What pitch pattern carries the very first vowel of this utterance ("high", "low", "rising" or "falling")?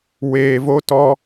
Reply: low